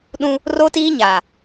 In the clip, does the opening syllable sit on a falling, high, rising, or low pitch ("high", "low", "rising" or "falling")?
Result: high